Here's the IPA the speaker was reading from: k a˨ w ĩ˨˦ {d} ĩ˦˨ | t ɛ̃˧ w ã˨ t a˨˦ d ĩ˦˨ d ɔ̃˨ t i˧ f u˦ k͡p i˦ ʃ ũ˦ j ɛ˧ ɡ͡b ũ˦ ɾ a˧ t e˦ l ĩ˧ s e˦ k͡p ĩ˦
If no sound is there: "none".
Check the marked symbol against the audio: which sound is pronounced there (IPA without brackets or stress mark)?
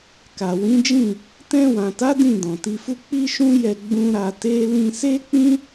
d͡ʒ